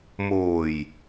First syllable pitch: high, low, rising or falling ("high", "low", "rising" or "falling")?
low